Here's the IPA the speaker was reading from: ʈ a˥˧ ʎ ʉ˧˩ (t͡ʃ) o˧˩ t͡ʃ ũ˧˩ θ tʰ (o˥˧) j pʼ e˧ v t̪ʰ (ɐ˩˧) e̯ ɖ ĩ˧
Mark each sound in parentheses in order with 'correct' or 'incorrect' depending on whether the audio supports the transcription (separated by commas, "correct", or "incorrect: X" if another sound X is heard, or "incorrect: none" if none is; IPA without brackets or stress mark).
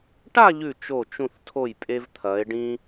correct, incorrect: o˧˩, correct